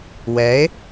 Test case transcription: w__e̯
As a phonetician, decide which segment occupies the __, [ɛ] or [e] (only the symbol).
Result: ɛ